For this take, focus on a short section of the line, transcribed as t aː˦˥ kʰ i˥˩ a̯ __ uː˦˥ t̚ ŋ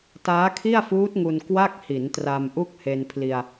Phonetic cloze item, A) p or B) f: B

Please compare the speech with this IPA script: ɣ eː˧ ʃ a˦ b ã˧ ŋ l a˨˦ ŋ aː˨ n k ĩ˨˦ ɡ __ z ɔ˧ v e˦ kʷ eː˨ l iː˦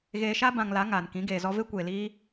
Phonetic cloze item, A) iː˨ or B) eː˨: B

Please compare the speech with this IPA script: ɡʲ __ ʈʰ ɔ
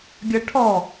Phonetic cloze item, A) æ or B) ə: B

